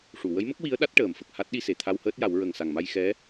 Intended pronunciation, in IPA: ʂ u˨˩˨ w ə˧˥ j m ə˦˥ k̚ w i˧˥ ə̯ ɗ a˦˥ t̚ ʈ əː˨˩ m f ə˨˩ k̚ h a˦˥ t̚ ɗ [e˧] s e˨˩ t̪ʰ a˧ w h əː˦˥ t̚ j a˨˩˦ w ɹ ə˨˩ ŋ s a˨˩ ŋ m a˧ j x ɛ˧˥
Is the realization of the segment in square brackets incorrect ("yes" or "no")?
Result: yes